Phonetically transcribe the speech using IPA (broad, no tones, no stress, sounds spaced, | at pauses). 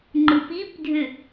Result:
ŋ͡ǃ ɯ p i p dʱ ʏ